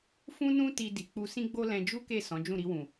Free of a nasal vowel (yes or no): no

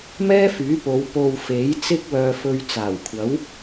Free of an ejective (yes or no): yes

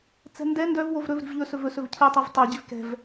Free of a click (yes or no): yes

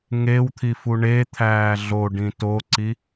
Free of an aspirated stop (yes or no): no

